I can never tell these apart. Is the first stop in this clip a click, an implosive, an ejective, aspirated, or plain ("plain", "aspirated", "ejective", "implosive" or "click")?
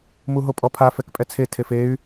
ejective